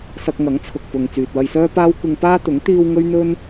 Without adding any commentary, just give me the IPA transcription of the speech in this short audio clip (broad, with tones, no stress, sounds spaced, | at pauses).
s ɐ˧ k̚ ŋ ɐ˨˥ ŋ t͡sʰ ʊ˨ k̚ p ʊ˨ ŋ t͡s yː˨ t̚ w ɐ˧ j s œː˥ p aː˥ w kʷ ɪ˧ ŋ p aː˥ t̪ ʊ˨˥ ŋ t̪ iː˧ w ŋ ɵ˥ ɥ n̪ ɵ˥ n